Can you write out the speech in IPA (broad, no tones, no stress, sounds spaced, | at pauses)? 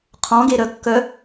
qʰ ɔ̃ ɡ e ɾ œ kː œ